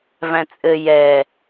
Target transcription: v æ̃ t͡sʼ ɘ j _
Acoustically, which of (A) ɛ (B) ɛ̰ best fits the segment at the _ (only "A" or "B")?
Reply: A